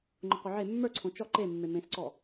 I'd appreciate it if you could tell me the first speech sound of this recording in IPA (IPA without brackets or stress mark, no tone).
ŋ͡ǃ